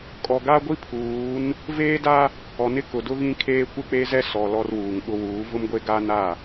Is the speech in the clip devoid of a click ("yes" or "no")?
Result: yes